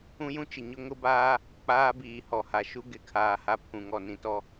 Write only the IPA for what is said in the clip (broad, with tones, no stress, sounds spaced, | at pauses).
ũ˦ j ũ˦ t͡ʃ ɪ˨ ɲ ʊ˦ ŋ ʊ˦ b aː˦ | k͡p aː˦ b iː˨ h ɔ˨ h a˨ ʃ u˦ ɡ ɪ˨˦ kʰ aː˨ h a˦ pʰ ũ˨ ŋ ɔ˨ n ĩ˨ t ɔ˦